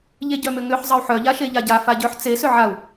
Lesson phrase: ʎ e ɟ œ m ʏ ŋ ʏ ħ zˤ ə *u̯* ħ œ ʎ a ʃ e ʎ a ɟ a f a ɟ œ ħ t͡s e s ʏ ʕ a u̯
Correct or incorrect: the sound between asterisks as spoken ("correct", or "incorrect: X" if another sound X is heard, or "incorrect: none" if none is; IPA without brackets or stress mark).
correct